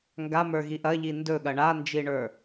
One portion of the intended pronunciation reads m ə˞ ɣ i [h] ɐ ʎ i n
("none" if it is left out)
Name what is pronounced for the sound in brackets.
ʔ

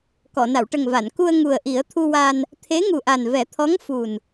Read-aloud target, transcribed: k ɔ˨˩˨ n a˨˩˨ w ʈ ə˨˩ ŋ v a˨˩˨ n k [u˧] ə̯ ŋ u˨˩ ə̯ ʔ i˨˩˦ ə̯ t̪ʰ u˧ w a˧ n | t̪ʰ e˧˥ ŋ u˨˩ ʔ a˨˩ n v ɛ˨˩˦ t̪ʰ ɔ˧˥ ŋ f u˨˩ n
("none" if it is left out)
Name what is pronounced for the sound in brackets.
u˧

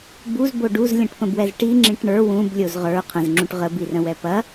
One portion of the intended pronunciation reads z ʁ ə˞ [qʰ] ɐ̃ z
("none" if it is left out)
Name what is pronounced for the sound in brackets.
qʰ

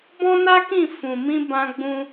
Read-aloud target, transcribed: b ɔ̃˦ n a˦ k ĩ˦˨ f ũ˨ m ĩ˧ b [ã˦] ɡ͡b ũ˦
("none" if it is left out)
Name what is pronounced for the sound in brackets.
ã˦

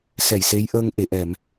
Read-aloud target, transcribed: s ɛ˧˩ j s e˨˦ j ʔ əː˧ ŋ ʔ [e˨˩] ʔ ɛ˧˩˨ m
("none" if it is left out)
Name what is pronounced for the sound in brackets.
e˨˩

